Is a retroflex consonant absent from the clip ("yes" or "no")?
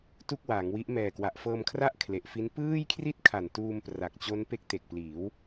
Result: yes